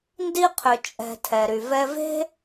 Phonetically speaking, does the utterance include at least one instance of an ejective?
yes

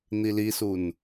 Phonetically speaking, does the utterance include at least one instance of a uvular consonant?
no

